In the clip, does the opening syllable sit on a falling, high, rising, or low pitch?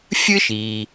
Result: high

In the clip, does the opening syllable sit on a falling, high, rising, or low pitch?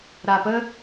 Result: low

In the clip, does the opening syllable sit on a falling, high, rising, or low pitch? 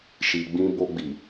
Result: low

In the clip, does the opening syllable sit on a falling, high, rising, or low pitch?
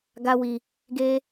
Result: high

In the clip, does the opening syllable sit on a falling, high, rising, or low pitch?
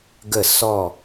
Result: falling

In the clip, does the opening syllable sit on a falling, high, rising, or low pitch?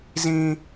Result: high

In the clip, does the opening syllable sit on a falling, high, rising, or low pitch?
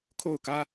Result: falling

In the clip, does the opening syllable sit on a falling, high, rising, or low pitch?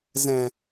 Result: low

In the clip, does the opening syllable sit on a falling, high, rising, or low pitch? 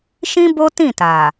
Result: high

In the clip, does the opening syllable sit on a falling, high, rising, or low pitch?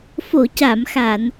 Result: low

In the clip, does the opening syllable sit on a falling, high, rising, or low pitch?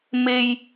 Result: high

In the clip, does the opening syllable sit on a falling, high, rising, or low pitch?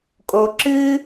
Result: low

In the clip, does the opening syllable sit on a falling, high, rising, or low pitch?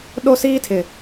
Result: high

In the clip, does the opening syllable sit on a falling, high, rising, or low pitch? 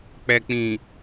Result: low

